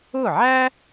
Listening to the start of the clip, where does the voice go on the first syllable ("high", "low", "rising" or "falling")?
falling